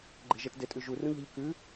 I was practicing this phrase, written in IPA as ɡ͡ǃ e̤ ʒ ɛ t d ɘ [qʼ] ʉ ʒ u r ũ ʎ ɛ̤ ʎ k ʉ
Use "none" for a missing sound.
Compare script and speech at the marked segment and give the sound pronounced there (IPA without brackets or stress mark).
tʼ